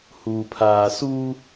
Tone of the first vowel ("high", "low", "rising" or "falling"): low